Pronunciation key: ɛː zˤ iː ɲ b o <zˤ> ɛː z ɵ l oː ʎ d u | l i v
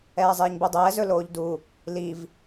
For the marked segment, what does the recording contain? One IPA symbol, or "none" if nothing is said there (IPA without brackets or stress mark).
dˤ